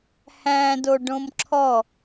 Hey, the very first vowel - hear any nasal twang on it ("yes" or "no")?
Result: yes